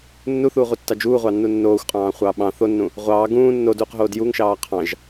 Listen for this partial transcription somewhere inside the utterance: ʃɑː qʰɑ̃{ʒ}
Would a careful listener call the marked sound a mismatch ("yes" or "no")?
no